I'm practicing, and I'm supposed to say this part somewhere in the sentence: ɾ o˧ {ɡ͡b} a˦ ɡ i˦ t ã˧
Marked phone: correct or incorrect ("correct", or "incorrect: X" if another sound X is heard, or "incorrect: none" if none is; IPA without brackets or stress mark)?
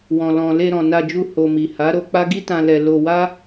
incorrect: k͡p